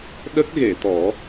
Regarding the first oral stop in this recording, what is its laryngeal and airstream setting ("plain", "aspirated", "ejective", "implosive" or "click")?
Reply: implosive